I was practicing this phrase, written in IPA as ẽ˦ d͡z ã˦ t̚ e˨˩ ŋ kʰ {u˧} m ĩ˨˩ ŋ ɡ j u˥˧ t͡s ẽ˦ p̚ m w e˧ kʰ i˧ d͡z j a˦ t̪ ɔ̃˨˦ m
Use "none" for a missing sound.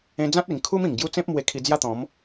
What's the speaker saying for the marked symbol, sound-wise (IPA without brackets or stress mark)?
u˦